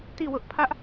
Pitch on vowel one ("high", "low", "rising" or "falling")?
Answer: falling